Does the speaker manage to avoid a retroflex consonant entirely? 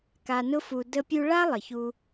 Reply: no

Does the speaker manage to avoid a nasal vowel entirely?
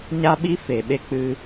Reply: yes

